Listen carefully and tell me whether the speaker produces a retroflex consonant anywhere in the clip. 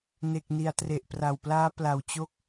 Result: no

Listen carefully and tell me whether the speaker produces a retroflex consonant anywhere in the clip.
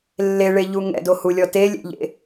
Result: yes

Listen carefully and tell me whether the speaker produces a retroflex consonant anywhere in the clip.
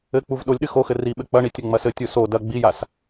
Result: yes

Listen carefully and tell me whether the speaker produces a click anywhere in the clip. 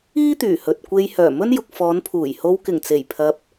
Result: no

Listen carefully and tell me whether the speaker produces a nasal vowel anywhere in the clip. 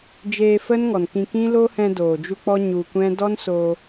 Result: yes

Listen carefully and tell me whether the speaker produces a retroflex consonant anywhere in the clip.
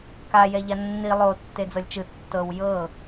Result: no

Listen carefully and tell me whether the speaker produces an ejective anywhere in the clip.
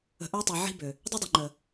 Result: no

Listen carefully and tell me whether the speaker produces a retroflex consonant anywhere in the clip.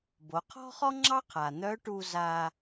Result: yes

